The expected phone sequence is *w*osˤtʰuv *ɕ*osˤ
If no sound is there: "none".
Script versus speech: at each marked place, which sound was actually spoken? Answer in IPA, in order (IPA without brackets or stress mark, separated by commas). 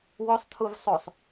w, sˤ